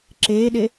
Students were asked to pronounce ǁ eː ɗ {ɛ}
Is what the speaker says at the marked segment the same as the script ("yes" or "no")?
no